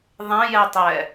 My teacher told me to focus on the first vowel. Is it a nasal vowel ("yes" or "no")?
yes